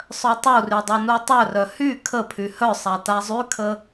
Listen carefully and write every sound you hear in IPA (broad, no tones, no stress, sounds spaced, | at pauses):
sˤ œ tˤ u r y dˤ u n u tˤ œ r œ h y kʰ ə pʰ y h œ sˤ a t a zˤ y kʰ ə